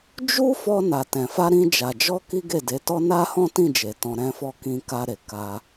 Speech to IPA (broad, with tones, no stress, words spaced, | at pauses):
d͡ʒu˦ fɔ˧ na˨tɛ̃˨fa˧ɾĩ˧ d͡ʒa˨d͡ʒɔ˧ ki˦ɡe˦˨de˨˦tɔ˦ na˦hɔ̃˦tĩ˦˨d͡ʒe˨ tɔ̃˧ɾɛ̃˦fɔ˦ kĩ˧ka˧ɾe˨ ka˧